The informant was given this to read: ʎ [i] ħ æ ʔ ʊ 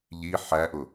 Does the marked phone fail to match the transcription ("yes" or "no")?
no